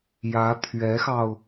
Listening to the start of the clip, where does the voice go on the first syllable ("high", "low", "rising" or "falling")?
rising